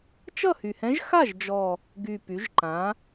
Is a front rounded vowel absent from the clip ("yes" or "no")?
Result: no